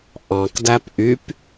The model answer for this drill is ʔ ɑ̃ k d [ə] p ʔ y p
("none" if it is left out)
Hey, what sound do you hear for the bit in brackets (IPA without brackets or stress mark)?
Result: æ